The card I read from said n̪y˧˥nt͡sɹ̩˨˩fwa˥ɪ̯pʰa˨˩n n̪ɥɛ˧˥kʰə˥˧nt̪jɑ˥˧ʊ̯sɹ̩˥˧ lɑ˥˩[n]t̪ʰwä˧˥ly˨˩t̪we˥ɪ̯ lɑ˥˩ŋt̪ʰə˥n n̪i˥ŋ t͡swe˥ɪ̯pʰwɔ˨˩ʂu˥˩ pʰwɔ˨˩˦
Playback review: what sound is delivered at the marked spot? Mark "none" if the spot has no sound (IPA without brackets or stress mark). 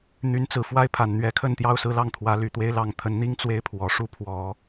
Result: ŋ